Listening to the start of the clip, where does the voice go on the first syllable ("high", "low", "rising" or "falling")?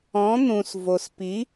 rising